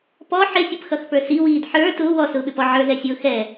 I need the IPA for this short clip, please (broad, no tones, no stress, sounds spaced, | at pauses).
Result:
p ɔ ħ ɪ sʲ ʊ p x ʌ x p ə˞ s i w iː d ħ ə˞ t ʊː w ɔ s ʊː ɓ ɪ p ɔ ʕ ə˞ z ɛ sʲ ʊː x ɛ